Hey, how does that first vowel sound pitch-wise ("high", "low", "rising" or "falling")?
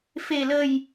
low